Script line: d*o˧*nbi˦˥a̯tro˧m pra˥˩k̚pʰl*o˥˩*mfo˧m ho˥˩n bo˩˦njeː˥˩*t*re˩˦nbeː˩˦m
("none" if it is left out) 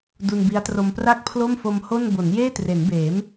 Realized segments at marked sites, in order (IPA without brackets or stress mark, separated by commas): u˧, o˥˩, t